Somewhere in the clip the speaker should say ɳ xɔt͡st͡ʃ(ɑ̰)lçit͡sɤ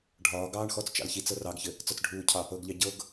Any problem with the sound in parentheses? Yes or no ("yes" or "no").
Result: no